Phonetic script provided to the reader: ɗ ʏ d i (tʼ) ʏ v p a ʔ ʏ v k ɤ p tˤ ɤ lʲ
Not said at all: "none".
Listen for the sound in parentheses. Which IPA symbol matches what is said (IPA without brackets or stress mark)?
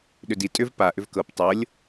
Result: tʼ